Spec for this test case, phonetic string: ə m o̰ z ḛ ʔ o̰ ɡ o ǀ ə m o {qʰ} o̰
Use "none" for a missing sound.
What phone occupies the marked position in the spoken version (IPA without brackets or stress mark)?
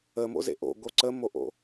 ʔ